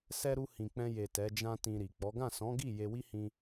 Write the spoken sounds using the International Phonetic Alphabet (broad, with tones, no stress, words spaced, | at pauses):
sɛ˧ɾu˧ hĩ˨k͡pɛ̃˧je˨ tɛ˨˦d͡ʒã˦tĩ˧ɾi˨ k͡pɔ˨˦ ɡã˦˨sɔ̃˨˦ɡi˦˨ je˧wi˦hĩ˧